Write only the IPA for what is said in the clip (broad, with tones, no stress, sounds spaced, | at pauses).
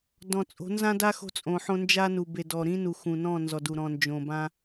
d ɔ̃˨ t͡sʼ o̤˨˦ n z ã˦ d a˦ x o̤˦ t͡sʼ õ˨ ħ õ˦ n d͡ʒ a˦ n u˨ b e˨ d ɔ˨ ɾ ĩ˦ n u˨ x ũ˨ n ɔ̃˦˨ n z ɔ˨ d u˨ ɾ ɔ̃˨ n d͡ʒ õ˨ b ã˦